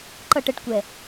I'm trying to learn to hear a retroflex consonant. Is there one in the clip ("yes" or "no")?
yes